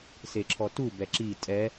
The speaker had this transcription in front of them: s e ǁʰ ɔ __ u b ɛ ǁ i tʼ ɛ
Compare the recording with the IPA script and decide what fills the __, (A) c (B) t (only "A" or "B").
B